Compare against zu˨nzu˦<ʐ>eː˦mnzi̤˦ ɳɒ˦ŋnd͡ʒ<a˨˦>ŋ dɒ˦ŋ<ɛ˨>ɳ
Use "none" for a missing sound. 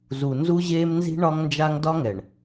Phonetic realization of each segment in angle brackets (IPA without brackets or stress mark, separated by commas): ʑ, a˦, ɛ˨